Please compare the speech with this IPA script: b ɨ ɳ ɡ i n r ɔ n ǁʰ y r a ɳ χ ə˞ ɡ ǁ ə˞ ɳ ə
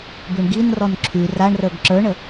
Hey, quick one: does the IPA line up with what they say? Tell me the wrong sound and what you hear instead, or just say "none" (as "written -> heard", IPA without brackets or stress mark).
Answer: χ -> r